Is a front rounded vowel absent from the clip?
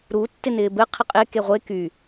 no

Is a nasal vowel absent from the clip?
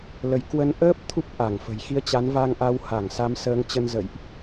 yes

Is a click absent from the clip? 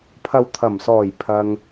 yes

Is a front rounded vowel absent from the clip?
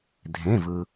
yes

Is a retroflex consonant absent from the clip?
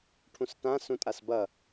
no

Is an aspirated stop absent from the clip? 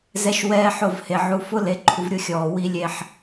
no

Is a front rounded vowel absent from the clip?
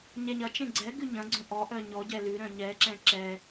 no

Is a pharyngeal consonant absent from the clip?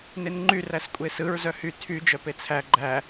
yes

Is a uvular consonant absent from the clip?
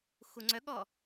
yes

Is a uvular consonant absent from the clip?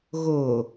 yes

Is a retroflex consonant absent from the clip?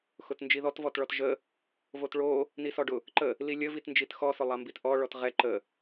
no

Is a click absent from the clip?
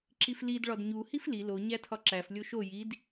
no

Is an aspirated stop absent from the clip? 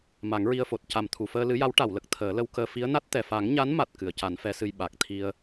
no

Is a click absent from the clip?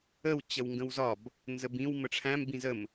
yes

